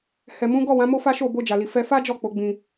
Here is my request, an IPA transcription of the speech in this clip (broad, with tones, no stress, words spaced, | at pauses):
hɛ˨mũ˨˦ ɡɔ˦˨wã˨˦ mo˦fa˦ʃo˦˨ bo˧d͡ʒa˨li˨ fɛ˧fa˦ d͡ʒɔ˦˨k͡po˨˦ɡ͡bĩ˧